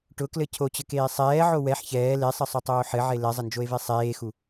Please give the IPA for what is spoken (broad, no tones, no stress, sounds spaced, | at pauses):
ʈ ʊ k l ɘ cʰ o t͡ɕ ɘ k eː sˤ ɛː ʕ o w ɛ ħ ç ɛː l e sˤ ɘ sˤ o tˤ oː ħ ɘ ʕ e l ɛ zˤ ɘ n d͡ʒ o e̯ v e sˤ eː x u